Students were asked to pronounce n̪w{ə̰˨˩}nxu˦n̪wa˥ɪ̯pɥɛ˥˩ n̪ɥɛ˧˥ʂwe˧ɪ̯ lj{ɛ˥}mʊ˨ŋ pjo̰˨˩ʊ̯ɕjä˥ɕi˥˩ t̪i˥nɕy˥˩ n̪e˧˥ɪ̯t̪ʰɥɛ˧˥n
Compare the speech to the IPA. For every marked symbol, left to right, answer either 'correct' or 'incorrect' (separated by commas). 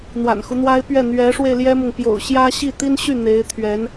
incorrect, correct